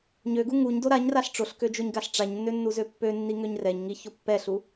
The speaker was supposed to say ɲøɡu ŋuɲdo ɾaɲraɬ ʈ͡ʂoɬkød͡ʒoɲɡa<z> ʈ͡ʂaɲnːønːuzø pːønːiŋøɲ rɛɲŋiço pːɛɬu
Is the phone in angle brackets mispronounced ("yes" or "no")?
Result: yes